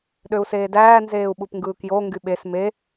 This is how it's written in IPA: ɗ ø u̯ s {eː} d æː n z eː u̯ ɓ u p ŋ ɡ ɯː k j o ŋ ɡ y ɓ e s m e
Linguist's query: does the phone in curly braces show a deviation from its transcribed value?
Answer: no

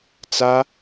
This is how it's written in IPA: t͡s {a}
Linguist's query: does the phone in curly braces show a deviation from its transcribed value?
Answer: no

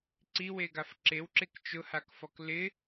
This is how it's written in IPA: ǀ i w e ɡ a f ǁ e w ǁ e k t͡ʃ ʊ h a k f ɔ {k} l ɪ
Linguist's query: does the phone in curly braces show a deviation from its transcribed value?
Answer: no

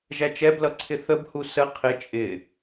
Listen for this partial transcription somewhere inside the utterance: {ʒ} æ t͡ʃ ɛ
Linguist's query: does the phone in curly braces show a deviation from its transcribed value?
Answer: no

